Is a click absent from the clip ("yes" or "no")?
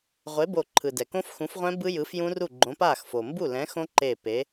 no